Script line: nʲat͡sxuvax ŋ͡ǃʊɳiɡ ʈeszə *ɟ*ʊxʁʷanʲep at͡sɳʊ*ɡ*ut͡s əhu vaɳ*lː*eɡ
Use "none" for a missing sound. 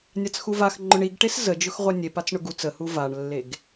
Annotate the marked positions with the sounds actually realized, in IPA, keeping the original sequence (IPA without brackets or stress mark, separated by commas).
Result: d͡ʒ, ɡ, lː